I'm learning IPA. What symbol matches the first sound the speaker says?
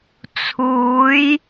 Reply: t͡sʰ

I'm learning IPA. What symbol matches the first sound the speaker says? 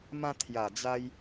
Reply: m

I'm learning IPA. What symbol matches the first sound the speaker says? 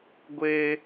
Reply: ɡʷ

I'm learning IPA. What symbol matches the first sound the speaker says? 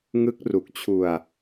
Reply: ŋ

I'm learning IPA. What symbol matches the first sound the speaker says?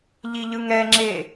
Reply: ʎ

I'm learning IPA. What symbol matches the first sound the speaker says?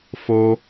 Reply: f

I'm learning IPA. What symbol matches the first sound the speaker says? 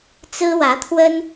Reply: t͡s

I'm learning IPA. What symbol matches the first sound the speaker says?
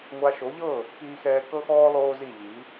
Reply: ŋʷ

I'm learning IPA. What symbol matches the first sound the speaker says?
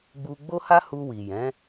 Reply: ɡ͡b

